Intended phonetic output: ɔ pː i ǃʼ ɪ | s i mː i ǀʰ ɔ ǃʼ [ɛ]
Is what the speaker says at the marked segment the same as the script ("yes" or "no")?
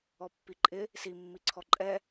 yes